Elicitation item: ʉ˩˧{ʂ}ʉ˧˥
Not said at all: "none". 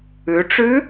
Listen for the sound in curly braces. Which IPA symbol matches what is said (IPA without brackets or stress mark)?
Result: ʈ͡ʂ